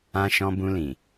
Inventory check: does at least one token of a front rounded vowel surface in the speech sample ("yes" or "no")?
no